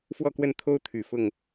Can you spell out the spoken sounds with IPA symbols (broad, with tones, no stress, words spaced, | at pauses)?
fwɔ˥˧kwə˥˩n t̪ʰo˥ʊ̯t̪ʰy˨˩ fʊ˥˩ŋ